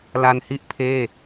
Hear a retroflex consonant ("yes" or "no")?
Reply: no